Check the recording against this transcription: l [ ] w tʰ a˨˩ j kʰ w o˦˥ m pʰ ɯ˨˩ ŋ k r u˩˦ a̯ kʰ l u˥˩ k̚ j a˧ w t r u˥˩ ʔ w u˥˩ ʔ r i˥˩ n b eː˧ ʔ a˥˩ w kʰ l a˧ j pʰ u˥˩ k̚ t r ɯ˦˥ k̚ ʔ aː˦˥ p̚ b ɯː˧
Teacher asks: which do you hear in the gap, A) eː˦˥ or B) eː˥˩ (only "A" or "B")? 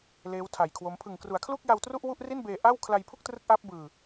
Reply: A